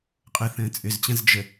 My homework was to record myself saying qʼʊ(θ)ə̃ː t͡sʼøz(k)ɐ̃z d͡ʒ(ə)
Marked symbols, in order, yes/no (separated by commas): yes, no, yes